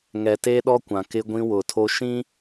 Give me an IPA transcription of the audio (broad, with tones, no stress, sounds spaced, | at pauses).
ŋ ɛ˨ t eː˦ ɗ ɔ˦ kʷ ã˨ k ɪ˦ ɡʷ ĩ˦ w ʊ˨ tʰ o˦ ʃ ĩ˦